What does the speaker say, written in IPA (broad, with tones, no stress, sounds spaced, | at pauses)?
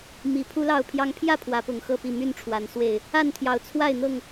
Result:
m i˨˩ pʰ u˦ l ɑ˥˨ ʊ̯ pʰ j ɑ˦ ŋ pʰ j ä˥˨ pʰ w ä˨˦ p ʊ˨˩ ŋ x ɤ˥˨ p i˥˨ m y˥˨ n ʈ͡ʂʰ w a˨˩ n s w e˥˨ ɪ̯ | a˥˨ n t̪ʰ j ɑ˨˩ ʊ̯ t͡sʰ w a˥˨ ɪ̯ n̪ ɤ˥˨ ŋ